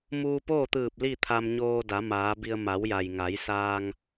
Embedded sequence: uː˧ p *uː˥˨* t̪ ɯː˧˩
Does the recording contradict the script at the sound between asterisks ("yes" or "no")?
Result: yes